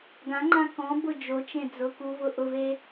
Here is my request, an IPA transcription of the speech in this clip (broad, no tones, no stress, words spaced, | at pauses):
ɡãŋ͡ǃã kɔ̃ bʊ d͡ʒot͡ʃẽ d͡zʊkuvʊ ʔʊve